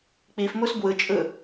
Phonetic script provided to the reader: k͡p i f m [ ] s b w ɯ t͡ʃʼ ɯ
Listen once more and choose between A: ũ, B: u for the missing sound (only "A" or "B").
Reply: B